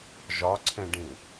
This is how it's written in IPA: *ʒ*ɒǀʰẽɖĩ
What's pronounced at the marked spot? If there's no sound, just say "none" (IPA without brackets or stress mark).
ʒ